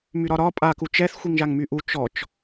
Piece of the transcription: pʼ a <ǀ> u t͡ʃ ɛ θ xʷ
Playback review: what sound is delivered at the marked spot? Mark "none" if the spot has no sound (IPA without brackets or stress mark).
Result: k